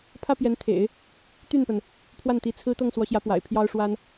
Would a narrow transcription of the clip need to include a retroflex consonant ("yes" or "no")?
yes